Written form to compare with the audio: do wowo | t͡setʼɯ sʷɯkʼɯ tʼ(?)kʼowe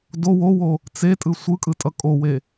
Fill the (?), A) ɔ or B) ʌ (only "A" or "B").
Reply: B